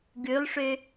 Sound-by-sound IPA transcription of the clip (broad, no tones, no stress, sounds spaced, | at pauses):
ɡ ʉ lˠ ʂ ø